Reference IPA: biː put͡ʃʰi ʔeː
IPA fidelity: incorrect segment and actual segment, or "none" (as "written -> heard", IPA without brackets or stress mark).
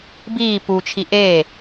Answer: none